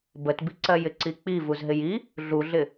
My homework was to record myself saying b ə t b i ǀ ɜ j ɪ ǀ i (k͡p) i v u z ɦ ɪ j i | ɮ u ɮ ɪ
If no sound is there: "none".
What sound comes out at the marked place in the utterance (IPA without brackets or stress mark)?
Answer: k͡p